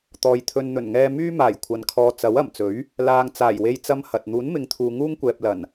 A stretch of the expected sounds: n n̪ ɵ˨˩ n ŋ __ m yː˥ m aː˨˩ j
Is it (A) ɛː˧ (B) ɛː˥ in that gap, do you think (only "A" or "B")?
A